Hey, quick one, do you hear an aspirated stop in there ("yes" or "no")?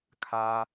yes